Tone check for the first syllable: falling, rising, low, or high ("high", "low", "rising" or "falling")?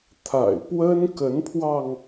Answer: low